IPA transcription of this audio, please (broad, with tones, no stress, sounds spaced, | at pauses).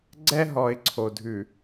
ɡ͡ǀ ɛ˦ ɦ ɔ˨ ɪ̯ ǀʰ o˨ dʱ ʉ˨